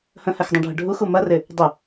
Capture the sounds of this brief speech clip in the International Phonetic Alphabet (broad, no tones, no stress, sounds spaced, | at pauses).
h ə̃ h ɛ x dˤ ũ ɖʱ ə ɖʱ u x u m ɐ r ɪ | dˤ ɪ